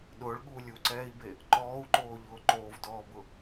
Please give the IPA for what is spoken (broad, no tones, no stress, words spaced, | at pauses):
ɗʊːɭɠuː lʲuǀɛːi̯be | ǃɔːu̯ǃoːʎʊː ǃoːvdɔːbʊ